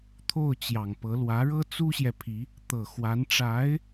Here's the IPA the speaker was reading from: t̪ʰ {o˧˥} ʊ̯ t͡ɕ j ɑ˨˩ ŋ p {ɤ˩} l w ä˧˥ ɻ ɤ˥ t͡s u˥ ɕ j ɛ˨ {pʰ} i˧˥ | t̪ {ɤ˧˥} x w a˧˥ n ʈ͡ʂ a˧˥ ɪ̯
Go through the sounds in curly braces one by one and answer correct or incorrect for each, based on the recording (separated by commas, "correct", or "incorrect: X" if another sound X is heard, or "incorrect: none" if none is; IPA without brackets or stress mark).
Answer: incorrect: o˥˩, incorrect: ɤ˧˥, correct, incorrect: ɤ˨˩